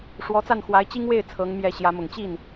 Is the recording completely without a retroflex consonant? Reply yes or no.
no